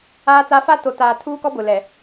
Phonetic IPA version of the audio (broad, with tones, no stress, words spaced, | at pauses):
aː˦t͡sa˦ fa˦to˨taː˨ tʰuː˦kɔ˦ bʊ˨ lɛ˨